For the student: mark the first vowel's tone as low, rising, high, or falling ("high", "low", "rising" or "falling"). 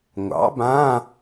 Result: rising